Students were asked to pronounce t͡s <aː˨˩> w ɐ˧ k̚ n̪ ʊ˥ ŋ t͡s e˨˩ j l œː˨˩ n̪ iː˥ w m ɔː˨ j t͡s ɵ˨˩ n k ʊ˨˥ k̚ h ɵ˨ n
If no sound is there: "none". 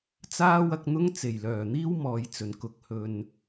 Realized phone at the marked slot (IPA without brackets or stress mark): aː˥